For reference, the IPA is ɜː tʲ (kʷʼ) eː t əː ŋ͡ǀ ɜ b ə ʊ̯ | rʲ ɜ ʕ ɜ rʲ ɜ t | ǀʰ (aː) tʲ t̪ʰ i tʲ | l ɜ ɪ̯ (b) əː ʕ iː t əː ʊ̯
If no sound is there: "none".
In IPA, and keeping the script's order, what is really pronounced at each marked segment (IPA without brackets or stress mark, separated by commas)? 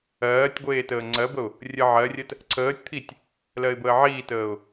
ɡʷ, əː, b